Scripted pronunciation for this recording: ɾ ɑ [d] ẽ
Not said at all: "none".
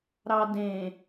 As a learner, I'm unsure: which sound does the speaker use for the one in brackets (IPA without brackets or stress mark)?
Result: d